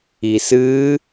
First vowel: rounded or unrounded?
unrounded